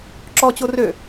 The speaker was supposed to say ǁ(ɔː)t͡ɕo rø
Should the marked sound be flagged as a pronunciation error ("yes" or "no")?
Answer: yes